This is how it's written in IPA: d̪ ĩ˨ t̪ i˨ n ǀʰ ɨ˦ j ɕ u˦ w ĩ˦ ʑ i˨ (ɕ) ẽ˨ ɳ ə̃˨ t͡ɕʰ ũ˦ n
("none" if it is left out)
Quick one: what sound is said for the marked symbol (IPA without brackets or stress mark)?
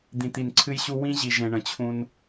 ʒ